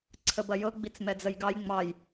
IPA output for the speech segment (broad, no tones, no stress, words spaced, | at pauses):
ǀʰəbɐjɤ ɡ͡bit͡smɛd͡zəjɡɑj ŋ͡mɑj